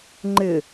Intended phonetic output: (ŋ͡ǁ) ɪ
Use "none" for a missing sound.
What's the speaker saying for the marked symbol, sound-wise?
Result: ŋ͡ǃ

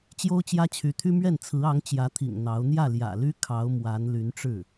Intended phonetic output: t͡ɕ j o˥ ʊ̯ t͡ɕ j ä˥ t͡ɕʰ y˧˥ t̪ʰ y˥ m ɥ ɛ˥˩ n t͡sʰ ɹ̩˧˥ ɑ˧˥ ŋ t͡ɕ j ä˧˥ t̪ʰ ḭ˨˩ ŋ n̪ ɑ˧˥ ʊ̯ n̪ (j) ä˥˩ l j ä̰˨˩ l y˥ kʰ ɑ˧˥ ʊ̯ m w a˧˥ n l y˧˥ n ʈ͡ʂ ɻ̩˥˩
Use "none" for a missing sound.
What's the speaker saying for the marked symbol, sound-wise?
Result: j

